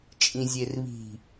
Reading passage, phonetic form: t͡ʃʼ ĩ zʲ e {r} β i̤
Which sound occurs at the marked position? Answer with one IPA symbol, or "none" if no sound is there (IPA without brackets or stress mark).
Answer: r